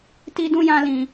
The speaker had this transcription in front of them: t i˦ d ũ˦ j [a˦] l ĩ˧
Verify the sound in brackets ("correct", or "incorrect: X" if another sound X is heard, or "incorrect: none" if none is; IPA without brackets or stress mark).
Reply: incorrect: ã˦